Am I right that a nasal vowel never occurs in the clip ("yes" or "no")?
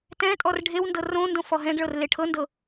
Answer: no